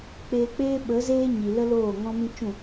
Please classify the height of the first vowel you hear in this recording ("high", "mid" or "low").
mid